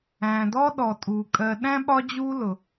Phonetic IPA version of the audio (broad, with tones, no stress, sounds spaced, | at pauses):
æ̃˩ d ɔ˦ ɗ ɔ˩ tʼ u˩ kʼ ɜ˨ ɗ æ̃˥ ɓ ɒ˦ d͡ʑ u˦ l ʊ˩